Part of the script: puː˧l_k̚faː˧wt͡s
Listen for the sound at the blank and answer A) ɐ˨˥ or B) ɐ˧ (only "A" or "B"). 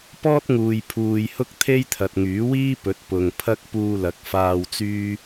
A